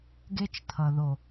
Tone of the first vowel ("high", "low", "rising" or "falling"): high